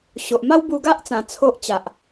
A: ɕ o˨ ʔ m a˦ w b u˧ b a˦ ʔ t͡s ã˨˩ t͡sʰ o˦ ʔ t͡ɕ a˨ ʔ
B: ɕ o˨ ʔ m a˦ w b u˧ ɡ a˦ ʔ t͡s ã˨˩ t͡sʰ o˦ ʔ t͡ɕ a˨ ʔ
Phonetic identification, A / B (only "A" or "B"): B